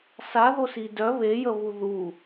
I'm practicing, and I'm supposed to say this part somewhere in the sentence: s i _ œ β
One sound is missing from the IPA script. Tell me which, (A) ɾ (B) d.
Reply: B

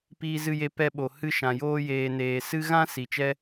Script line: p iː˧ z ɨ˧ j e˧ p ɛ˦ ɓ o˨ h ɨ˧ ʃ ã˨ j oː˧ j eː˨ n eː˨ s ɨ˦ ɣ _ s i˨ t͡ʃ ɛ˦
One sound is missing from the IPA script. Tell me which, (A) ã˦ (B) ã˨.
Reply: A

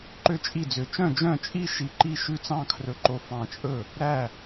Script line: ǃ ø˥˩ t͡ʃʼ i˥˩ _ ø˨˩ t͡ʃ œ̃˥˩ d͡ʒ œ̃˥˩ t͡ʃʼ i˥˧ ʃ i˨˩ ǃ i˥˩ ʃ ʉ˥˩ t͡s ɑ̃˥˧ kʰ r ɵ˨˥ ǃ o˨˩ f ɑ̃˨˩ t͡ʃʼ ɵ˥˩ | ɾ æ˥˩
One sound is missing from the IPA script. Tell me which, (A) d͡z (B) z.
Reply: A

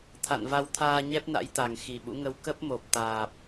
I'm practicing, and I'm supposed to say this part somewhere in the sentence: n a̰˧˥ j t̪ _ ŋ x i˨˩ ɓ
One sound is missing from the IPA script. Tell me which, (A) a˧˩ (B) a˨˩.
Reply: B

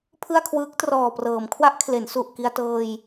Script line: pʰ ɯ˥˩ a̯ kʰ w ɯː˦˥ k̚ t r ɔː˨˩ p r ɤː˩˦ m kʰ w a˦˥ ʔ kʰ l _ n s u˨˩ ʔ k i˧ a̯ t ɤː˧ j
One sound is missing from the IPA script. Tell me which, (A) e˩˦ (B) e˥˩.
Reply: A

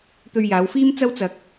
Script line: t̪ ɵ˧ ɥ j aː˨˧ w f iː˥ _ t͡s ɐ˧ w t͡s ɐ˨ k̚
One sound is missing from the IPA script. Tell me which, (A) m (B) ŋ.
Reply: A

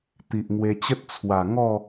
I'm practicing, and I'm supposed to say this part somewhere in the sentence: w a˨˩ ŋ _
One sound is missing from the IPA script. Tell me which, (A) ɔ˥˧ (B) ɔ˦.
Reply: A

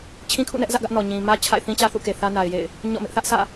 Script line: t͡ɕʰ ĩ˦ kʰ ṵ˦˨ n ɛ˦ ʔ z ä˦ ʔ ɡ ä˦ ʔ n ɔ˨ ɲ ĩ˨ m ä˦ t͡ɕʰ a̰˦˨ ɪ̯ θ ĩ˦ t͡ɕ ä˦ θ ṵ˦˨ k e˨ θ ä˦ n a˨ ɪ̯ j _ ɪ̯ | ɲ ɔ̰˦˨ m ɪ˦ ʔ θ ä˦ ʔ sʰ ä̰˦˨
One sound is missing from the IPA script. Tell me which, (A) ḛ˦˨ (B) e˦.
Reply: A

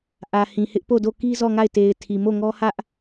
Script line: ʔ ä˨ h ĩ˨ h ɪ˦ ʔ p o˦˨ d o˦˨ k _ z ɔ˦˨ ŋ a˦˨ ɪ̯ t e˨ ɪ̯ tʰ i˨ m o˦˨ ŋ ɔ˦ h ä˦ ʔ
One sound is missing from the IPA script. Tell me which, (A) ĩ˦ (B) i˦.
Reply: B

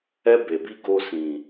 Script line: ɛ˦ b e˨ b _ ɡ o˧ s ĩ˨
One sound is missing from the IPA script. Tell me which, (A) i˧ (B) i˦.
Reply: B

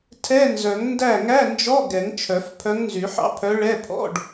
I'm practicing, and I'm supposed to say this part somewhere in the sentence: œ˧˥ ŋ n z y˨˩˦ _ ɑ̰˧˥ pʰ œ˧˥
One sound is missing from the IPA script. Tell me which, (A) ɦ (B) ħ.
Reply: B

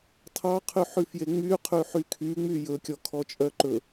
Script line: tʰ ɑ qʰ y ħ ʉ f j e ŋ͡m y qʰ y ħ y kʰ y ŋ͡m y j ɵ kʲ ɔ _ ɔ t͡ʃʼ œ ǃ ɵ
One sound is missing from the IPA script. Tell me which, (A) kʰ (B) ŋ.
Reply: A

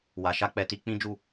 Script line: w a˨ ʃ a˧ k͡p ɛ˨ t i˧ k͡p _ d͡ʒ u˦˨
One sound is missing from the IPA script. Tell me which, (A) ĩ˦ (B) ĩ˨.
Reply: A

